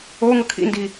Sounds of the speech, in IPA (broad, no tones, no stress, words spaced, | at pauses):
oŋɤ kʰḭndi